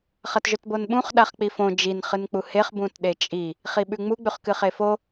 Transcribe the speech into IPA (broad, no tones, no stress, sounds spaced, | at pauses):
χ ɐ t ʒ ɵ t b o n ɓ ũ χ ɗ a χ k͡p i f õ d͡ʒ i n χ ɨ n k͡p u h e χ b ũ t ɗ e t͡ʃʼ i | χ i ɓ ʉ ŋ͡m u ɡ͡b ʉ χ k ɨ χ e f o